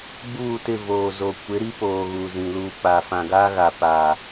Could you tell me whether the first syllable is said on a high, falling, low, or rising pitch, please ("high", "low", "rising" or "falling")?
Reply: falling